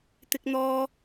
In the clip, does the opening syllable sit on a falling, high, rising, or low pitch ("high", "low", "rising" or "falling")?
high